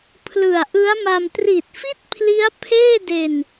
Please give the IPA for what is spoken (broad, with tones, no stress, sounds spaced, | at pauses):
pʰ l ɯ˨˩ a̯ ʔ ɯ˦˥ a̯ m a˧ m t r i˨˩ t̚ f i˥˩ t̚ pʰ l i˦˥ a̯ pʰ eː˥˩ d e˧ n